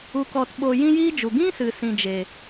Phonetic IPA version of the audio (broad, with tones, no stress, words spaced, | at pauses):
u˧kɔ˧tɓo˧ jĩ˦jiː˦d͡ʒu˨ ɡĩ˦sɨ˨ sĩ˧d͡ʒe˨